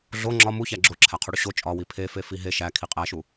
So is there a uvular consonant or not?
yes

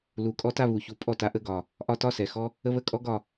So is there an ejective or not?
yes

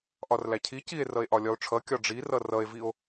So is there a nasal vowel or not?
no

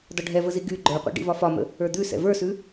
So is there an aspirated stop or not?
no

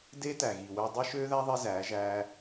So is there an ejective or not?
no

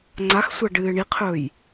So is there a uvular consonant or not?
yes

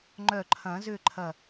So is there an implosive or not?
no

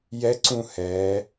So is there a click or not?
yes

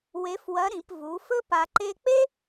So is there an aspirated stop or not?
no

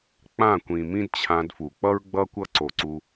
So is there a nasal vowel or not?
yes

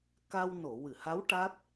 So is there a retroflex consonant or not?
yes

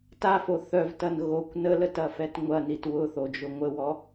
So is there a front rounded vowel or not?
yes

